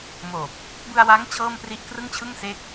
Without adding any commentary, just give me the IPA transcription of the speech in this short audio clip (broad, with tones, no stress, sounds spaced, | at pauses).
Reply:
m oː˨˩ p̚ | b ɯ˧ a̯ w aː˦˥ ŋ t͡ɕʰ ɤː˥˩ m p r i˥˩ ʔ k r ɯ˥˩ ŋ t͡ɕʰ ɯ˥˩ ŋ s e˦˥ k̚